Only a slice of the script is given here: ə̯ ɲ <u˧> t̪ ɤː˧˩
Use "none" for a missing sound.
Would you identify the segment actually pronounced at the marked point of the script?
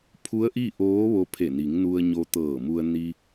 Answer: o˧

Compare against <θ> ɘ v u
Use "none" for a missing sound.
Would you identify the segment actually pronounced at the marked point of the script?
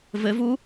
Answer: v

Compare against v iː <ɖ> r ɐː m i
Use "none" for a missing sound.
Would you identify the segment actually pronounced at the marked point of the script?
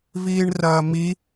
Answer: ɳ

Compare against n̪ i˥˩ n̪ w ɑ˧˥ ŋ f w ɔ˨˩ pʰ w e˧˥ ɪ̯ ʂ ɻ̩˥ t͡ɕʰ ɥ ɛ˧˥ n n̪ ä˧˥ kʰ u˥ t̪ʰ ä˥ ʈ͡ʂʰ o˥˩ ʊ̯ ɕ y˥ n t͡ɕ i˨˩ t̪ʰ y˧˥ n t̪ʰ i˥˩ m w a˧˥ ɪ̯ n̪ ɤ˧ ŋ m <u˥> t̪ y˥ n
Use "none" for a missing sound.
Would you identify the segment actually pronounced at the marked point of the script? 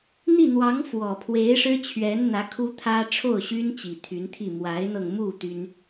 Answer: u˥˩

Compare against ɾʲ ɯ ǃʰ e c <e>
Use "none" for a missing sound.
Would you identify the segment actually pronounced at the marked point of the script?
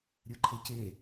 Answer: e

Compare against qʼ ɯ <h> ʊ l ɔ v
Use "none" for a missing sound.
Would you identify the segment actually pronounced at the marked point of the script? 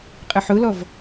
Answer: ħ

